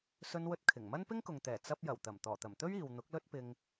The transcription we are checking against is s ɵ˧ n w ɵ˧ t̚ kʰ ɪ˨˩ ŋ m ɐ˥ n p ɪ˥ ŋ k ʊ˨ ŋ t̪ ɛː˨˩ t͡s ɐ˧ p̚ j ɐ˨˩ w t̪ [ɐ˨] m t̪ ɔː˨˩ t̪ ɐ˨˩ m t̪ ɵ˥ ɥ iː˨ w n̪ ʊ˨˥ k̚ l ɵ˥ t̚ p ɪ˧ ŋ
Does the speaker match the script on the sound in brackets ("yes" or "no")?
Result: no